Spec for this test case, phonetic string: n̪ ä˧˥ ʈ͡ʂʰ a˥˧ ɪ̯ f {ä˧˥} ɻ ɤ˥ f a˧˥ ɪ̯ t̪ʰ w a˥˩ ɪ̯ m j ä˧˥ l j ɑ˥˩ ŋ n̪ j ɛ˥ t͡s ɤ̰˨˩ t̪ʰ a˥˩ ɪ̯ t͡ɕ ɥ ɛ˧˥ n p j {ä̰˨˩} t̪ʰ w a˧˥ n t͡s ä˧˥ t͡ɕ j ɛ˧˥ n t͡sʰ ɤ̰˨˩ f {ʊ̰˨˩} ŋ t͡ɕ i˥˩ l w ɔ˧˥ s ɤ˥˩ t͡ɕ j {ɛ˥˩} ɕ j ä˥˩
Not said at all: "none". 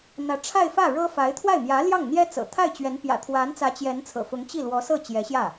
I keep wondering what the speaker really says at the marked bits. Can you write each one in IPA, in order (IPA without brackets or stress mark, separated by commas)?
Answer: ä˥˩, ä̰˨˩, ʊ˧˥, ɛ˧˥